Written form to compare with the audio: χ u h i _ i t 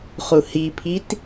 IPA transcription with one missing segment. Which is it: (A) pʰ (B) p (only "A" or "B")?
A